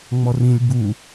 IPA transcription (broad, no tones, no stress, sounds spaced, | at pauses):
ŋ͡m ɔ r ĩ lʲ b u